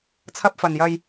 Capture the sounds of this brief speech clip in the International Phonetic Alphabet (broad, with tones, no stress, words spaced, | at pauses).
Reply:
t͡sʰɐ˧p̚fɐ˨njɐ˧j